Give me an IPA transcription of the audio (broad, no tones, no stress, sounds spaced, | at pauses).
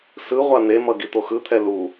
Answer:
s ɯ ʁʷ a n̪ e m ʌ ɡ i t̪ o x ɯ t̪ʰ ɛ l u